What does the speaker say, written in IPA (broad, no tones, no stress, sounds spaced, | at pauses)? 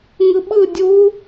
ŋ ɯ ɓ ɯ dʲ u